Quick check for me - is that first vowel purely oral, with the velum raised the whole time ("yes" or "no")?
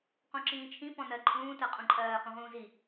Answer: no